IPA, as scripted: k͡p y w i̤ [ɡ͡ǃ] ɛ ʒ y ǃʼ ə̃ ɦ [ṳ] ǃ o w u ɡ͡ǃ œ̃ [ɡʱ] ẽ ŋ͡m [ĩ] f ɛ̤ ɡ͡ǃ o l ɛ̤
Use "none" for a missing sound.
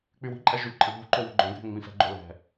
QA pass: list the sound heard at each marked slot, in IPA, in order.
ǃʼ, ṳ, ɡʱ, ĩ

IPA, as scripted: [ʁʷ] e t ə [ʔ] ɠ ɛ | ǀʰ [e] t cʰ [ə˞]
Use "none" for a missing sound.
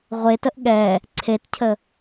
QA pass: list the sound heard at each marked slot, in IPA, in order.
ʁʷ, ʔ, e, ə

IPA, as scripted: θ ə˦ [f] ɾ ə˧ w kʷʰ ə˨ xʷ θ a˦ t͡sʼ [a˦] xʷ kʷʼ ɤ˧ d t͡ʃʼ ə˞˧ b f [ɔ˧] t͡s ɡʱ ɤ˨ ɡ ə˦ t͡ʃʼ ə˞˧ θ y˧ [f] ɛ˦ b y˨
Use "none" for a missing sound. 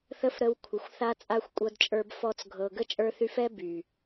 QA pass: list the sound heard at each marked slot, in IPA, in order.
f, a˦, ɔ˧, f

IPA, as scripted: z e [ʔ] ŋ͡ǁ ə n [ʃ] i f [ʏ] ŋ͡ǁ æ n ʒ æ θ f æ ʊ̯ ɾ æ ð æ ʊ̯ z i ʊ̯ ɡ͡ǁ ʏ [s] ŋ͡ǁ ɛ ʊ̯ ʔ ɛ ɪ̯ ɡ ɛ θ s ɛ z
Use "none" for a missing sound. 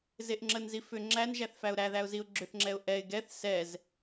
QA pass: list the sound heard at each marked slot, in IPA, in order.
ʔ, z, ʏ, θ

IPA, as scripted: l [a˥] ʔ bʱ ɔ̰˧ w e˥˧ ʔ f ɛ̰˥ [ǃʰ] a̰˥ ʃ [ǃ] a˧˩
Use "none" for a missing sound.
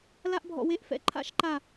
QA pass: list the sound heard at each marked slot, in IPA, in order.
a˥, ǃʰ, ǃ

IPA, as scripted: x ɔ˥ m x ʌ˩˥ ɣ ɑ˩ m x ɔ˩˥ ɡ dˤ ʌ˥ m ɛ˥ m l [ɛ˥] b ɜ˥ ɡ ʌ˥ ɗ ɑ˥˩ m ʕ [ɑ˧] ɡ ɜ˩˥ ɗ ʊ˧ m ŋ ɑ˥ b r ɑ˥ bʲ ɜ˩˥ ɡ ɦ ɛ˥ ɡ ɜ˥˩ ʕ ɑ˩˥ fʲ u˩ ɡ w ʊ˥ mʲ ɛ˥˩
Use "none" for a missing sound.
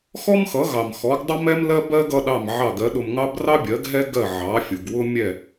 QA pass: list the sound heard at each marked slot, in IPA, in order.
ɜ˥, ɑ˥˩

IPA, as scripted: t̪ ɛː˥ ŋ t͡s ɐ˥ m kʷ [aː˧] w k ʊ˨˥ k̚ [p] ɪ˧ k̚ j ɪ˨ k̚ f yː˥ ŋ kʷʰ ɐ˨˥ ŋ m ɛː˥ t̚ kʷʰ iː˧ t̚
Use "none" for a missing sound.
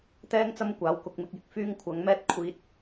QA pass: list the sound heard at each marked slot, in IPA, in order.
aː˨˥, m

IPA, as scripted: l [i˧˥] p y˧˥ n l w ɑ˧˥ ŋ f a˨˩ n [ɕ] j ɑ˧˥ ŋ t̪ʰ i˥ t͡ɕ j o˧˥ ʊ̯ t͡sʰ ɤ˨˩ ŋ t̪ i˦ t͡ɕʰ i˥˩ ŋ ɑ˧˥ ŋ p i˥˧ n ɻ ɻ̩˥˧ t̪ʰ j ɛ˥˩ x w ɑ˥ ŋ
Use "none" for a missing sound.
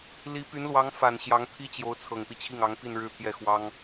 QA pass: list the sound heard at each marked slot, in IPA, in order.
i˧˥, ɕ

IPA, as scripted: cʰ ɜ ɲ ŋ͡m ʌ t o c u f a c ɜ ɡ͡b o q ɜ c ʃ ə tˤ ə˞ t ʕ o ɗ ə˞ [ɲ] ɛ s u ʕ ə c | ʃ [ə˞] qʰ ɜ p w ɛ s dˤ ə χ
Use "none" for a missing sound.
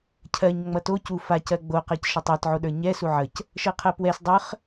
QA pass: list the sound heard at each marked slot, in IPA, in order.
ɲ, ɜ

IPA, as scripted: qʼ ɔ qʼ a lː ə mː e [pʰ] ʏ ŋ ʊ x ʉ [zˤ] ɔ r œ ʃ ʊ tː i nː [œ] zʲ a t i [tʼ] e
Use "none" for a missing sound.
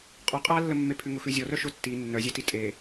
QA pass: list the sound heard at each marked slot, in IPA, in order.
pʰ, zʲ, œ, tʼ

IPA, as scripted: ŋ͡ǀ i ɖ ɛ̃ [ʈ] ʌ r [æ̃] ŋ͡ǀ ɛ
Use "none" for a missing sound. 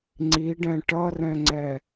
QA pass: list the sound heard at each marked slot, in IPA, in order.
ʈ, ɛ̃

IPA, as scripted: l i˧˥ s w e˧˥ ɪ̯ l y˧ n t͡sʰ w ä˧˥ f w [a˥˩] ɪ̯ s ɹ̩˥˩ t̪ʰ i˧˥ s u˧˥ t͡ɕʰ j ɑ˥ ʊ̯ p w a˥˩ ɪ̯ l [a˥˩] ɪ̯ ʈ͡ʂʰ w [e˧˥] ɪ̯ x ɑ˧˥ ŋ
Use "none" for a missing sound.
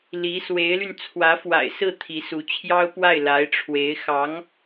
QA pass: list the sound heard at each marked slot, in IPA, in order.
a̰˨˩, a˧˥, e˧˥

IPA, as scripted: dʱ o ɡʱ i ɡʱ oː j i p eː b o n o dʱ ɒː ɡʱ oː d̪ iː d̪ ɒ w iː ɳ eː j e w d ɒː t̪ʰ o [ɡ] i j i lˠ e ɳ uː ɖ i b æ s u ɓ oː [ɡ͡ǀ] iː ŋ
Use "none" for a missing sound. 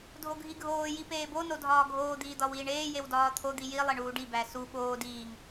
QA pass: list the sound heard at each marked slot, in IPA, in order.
d̪, d

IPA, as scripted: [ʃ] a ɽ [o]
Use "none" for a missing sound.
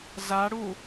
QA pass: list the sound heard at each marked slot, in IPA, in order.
z, u

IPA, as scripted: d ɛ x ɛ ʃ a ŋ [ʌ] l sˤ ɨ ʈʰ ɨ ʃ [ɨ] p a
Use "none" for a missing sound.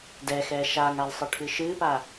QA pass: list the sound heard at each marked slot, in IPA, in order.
a, ɨ

